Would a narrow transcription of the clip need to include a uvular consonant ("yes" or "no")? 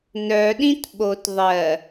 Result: no